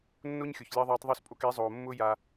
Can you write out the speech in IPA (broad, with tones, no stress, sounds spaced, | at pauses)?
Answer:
nː o˦ ɲ xʲ o˨ ç lʲ ɑ˧ ðˤ aː˧ tˤ ðˤ ɵ˦˨ s pʼ o˧ k e˨˦ zˤ oː˨ mː ʊː˦ j a˦